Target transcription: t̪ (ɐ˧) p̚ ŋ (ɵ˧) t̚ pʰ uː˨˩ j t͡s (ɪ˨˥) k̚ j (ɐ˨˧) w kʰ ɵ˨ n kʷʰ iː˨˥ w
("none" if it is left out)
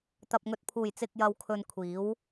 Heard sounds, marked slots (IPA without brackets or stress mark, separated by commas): ɐ˨, ɵ˨, ɪ˨, ɐ˨